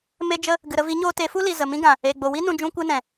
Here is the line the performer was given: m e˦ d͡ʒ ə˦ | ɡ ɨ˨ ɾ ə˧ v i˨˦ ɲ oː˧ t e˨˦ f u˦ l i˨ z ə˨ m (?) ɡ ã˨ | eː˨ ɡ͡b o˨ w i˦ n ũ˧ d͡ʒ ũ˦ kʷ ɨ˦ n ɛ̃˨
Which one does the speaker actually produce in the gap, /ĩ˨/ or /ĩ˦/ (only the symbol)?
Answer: ĩ˦